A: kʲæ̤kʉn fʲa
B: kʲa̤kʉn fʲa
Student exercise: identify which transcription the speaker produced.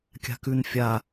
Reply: B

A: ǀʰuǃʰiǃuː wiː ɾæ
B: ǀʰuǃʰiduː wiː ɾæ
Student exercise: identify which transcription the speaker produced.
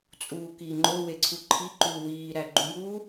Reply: A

